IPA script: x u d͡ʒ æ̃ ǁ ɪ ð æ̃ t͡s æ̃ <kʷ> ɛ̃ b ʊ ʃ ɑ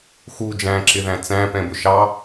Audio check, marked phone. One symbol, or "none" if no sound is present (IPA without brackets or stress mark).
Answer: p